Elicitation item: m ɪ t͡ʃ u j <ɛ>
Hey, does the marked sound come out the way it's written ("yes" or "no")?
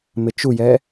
yes